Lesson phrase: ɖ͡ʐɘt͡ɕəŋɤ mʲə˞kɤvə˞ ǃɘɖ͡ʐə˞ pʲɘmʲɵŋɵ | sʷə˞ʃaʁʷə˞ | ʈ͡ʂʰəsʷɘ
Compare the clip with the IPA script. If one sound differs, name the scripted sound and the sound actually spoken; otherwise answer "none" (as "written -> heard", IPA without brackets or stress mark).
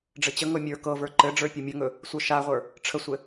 none